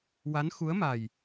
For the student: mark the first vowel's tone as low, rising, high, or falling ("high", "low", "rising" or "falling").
rising